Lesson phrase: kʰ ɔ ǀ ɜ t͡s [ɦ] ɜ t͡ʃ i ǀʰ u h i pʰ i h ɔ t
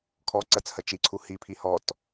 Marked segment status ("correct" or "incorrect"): incorrect